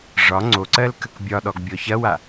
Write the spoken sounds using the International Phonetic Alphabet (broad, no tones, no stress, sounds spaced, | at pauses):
ʐ ɒ ŋ͡ǀ o ǀ ɜ l k ə k bʲ ɒ ɗ ɔ ɡ bʲ ɔ ç ɐ w a